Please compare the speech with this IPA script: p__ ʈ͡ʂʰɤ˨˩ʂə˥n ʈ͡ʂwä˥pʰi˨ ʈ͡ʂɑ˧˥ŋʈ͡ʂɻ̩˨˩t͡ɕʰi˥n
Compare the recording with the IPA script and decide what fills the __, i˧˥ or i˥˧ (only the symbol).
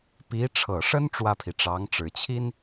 i˧˥